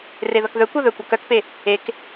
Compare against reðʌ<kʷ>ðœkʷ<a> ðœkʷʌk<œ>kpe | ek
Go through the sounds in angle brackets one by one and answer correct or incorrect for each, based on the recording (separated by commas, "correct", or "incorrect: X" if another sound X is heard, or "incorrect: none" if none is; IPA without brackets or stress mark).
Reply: incorrect: k, incorrect: ʌ, correct